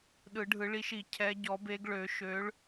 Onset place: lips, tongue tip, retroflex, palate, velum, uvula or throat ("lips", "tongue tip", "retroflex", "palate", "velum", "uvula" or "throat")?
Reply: tongue tip